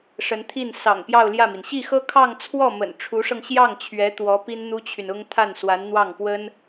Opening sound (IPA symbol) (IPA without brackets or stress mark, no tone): ʂ